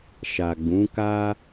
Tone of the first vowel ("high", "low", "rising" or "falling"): low